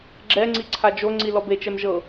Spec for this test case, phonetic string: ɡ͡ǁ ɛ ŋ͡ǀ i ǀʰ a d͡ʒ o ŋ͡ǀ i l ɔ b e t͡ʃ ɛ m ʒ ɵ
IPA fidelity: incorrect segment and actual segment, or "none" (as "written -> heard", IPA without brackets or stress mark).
ɵ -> ɤ